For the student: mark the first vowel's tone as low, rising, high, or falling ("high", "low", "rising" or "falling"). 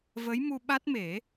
rising